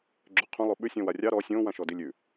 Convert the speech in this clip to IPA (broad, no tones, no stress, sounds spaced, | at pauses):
ɡ͡ǁ ʉ qʰ õ lˠ o ɓ ʉ sʲ ɔ̃ w a rʲ ɑ ɾ ɔ sʲ õ w ã ʃ ɔ d i lʲ ʉ